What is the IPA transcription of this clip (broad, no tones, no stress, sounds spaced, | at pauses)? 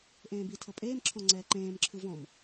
ʔ ẽː b i tʰ ɤ pʼ eː m ǁʰ ɔ̃ ŋ͡ǀ ɛː ǃ ẽː m ǁʰ ɯ v ɔ̃ m